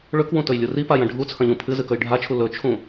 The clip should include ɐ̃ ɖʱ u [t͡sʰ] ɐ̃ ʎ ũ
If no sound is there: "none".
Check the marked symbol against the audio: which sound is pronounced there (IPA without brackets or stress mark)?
t͡sʰ